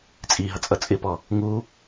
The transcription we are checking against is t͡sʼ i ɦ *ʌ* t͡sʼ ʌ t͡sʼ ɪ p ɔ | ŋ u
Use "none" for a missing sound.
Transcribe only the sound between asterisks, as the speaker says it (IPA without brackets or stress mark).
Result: ʌ